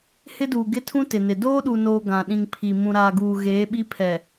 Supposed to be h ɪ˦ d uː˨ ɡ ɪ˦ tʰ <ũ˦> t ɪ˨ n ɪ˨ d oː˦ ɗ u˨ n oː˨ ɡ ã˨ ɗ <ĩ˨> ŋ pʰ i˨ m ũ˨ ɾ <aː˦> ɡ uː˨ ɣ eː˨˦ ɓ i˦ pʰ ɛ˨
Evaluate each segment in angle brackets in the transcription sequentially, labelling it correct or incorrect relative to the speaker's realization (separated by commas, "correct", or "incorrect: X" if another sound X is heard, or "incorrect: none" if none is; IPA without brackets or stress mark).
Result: correct, correct, incorrect: aː˨